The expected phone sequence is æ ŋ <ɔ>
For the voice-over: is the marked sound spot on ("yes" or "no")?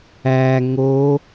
no